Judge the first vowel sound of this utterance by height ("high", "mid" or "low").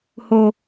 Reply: mid